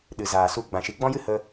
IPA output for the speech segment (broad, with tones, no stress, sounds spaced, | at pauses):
ɗ ɨ˨ z aː˨ s u˧ ɡ͡b ã˨ ʃ i˨ ɡ͡b ɔ̃˦ j ɨ˦ h ə˦